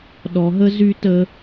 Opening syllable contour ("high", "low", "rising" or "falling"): low